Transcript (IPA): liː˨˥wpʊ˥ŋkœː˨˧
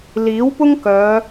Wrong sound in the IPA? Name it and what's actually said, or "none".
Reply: none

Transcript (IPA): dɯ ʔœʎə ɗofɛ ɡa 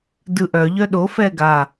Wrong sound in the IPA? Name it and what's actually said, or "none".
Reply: ə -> œ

